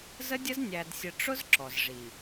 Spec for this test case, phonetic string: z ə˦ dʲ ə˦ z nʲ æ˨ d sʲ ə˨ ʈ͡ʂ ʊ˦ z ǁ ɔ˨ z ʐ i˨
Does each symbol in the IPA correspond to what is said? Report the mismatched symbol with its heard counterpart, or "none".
none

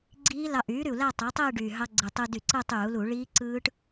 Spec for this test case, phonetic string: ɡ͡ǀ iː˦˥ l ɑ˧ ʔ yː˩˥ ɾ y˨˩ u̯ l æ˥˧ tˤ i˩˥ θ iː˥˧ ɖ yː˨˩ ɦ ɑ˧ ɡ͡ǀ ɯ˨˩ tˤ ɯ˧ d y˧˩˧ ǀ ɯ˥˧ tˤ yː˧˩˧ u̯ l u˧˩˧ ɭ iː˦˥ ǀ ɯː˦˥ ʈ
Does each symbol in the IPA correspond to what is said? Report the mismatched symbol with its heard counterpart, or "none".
θ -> tˤ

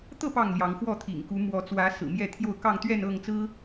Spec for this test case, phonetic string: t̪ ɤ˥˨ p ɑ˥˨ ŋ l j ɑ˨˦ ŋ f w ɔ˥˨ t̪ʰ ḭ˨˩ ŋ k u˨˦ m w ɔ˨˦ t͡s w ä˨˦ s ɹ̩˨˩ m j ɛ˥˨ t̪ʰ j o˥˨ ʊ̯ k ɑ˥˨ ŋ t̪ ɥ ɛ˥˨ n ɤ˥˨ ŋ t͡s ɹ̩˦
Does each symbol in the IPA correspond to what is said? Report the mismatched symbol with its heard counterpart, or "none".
none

